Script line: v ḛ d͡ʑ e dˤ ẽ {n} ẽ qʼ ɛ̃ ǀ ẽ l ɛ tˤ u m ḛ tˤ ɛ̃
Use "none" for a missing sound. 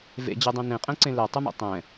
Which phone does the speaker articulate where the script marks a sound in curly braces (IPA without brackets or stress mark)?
n